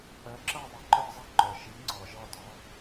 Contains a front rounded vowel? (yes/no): yes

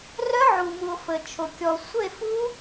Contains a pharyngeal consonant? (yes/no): yes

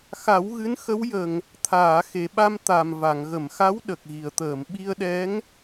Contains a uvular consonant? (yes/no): no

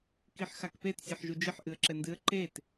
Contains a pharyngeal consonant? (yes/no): yes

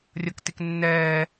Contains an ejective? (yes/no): no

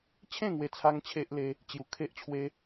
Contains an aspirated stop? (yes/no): yes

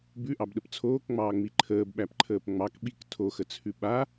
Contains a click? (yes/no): yes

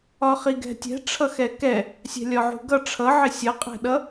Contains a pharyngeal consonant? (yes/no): yes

